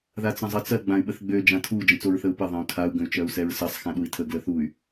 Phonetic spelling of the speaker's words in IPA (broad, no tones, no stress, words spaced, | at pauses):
ðat͡sə̃zˤɜt͡sɜ ɡ͡bãy̯ɓəθɡ͡bø d͡ʒãtʰu d͡ʒə̃t͡soɹθəu̯pə ðˤãu̯tʰau̯ ɡə̃y̯t͡ʃɜu̯sɛɹsɜsˤ xãɗui̯tʰə ɡləθuy̯